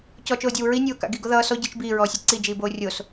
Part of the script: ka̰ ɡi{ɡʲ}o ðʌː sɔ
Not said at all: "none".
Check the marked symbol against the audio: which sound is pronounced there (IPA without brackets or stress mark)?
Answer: ɡ